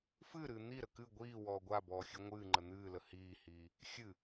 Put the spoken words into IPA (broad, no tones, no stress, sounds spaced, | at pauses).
f ɨː ɾ ɨː n̪ i ɾ ə k ɨ ɡʷ iː w ɔː ɡʷ a b ɔː xʲ ɨ ŋʷ ɨː ŋ͡ǃ ə n̪ ɨː l ə h iː h iː | xʲ ɨ